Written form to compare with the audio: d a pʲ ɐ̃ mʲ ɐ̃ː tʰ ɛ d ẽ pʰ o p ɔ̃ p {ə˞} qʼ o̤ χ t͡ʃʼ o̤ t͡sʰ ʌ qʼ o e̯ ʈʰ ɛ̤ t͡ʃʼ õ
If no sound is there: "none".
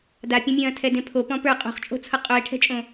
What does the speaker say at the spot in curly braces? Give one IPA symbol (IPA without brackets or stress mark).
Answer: ə˞